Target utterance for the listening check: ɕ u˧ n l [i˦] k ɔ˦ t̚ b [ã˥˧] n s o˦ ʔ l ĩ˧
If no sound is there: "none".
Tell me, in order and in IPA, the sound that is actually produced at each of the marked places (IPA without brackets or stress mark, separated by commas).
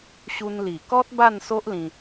i˨˩, a˥˧